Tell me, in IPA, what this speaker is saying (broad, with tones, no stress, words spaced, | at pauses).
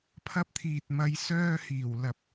pʰɐ˧p̚t̪ʰiː˨t̚mɐ˨˧j sœː˧hiː˨˩w lɐ˨p̚